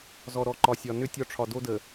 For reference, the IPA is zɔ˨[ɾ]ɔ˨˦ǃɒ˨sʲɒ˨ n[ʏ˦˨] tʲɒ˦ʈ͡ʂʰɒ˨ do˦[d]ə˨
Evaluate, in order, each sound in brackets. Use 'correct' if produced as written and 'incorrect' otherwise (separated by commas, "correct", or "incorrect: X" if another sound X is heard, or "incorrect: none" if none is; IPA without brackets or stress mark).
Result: correct, correct, correct